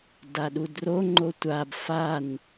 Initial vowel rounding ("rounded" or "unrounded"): unrounded